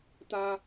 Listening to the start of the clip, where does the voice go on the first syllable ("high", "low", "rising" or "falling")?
high